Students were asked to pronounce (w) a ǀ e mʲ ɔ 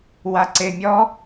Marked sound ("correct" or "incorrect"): correct